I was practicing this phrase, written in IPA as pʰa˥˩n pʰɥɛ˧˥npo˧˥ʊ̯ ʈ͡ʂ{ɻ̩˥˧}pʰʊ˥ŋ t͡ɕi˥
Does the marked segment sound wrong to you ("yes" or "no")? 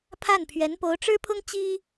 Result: yes